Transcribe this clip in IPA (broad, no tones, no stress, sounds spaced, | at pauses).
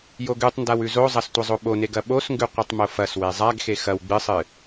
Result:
j o ɡ ʉ tˤ n d a w ʉ z o zˤ ɐ s tʷ ɐ zˤ o ɓ o n e ɡ ɐ ɓ o s ŋ ɡ ʉ qʷ ɨ tˤ m o f ɐ s w e zˤ a ɡ x e x ɐ w ɡ͡b ɨ sˤ ɨ